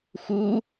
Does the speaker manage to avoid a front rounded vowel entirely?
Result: yes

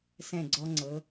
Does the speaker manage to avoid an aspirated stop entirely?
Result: yes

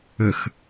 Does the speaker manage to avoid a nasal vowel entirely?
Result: yes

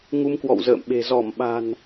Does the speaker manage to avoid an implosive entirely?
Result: no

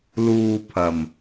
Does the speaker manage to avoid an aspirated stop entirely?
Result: no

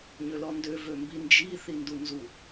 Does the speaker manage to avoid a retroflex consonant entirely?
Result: yes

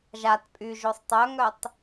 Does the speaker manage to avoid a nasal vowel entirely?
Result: yes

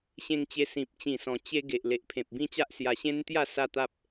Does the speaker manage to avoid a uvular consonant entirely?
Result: yes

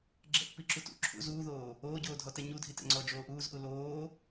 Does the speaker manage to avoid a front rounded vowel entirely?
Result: yes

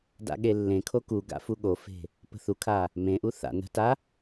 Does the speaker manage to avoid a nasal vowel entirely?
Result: no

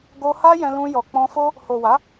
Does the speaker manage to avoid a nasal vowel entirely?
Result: no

